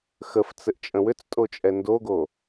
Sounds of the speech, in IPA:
x ə f t͡s ɘ ʔ t͡ʃʼ ə̃ w ʏ t͡s tʼ o t͡ʃʼ ɛ n d o ɡ o

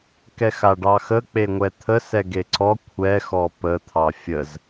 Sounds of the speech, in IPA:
k ɛ x a ɖ ɑ x ə k͡p e ŋʷ ɛ t̪ʰ ə s ɛ ɡ e ǀ ɔ kʷʰ ɛ x ɔ p ə t̪ʰ ɑ fʲ ə z

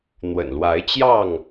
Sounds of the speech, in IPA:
n̪ w ə̰˨˩ n l w a˨˦ ɪ̯ t͡ɕ j ɑ˥˨ ŋ

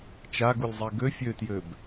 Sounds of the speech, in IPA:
t͡ʃ a ɡ u lʲ zˤ i ɡ ø fʲ ø t j ø b

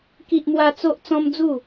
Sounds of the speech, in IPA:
k i˦ ʔ m w a˦ t͡s o˦ ʔ t͡s ɔ̃˦ m d͡z u˥˧

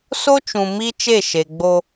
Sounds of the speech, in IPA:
s o˦ t͡ʃ ũ˨ m i˦ t͡ʃ e˦˨ ʃ e˨ ɡ͡b o˦

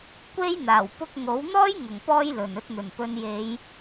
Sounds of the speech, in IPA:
kʷ e˥ j n̪ aː˨˩ w p ʊ˧ k̚ ŋ o˨˥ w n̪ ɔː˥ j ŋ ʊ˨˩ ŋ p ɔː˧ j l ɵ˨˩ n ɵ˨˥ t̚ n̪ ɵ˨˩ n p ɵ˨˧ n j e˨˧ j

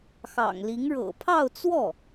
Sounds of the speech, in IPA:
x ɑ̰˨˩ ŋ l i˧˥ ŋ ɻ ɤ̰˨˩ pʰ ɑ˥˧ ʊ̯ t͡s w ɔ˥˩

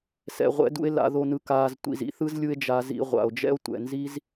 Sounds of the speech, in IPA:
s ɛ̰˨ ʁʷ ɛ̰˧ d ṵ˧ e̯ l a̰˨ ð o˨ n ɯ˨ k aː˨ z tʷ ḭ˨ z ḭ˨˦ θ ɯ˦ z lʲ ɯ˦ e̯ d͡ʒ a˧ z ḭ˧ ʁʷ a̰˨ o̯ d͡ʒ ɛ̰˦ o̯ tʷ ɛ̰˨ n z i˦ z

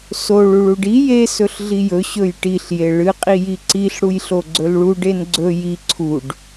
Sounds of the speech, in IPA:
s o ɭ u ɭ u ɖ i j e s ɵ ɬ ɮ i j ɵ ɕ ɵ j ʈ i ɬ j e ɭ ɨ qʼ i j i ǀ i ɬ ɽ u j ɬ o ɡ͡ǀ ɵ l ɭ u ɖ e n ɡ͡ǀ ɵ j i ǀʰ u ɖ

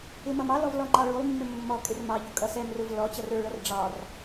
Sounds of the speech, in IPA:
ɪ m ʌ m ɑ l ɔ v l ɔ ŋ͡ǃ ɑ ɭ u lˠ mː ɪ mː ɔ kʼ ɪ r m ɑ ʎ ʊ kʼ ʌ s ɛ m r ʊ v l ɔ t͡ɕ ʌ r ə˞ ɭ ʌ r ɖ͡ʐ ɑ r

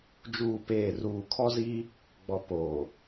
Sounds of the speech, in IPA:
d͡ʒ uː˦˨ p eː˦˨ r uː˨ kʰ ɔ˦ z iː˦ | ɡ͡b ɔ˨ p oː˨

